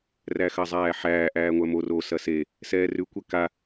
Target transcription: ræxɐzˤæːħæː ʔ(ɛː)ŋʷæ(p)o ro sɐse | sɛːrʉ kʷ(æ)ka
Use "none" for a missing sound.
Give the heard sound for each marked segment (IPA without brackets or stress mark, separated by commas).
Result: æː, m, ɛ